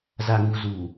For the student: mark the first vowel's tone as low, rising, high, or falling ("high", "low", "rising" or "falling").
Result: low